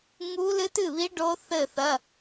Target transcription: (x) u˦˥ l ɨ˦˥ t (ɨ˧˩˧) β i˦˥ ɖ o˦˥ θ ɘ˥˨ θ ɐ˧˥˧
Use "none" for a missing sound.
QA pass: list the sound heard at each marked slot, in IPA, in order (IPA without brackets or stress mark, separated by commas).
ŋ, ɨ˥˨